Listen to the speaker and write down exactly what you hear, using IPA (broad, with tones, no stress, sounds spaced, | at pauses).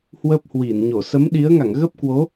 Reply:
h w ə˦˥ p̚ h w i˧˩ n ɲ o˧˩ s ə˨˦ m ɗ i˨˦ ə̯ ŋ a˧˩ ŋ ɣ ə˦˥ p̚ k w o˨˦